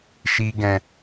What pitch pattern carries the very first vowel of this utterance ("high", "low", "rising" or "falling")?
high